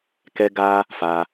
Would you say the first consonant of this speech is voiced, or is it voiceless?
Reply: voiceless